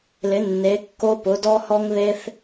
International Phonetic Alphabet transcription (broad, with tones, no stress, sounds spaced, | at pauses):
l ɪ˩˧ nː e˩˧ kː o˧ p ʊ˩˧ d ɔ˧ h ɔ˧ ŋ ð e˧ θ